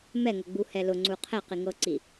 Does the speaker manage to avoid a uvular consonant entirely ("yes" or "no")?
no